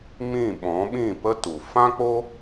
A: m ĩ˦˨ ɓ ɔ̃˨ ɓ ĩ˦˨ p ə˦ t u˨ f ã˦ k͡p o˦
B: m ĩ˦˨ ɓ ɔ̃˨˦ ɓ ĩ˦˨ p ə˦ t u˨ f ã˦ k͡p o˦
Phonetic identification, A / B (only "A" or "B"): B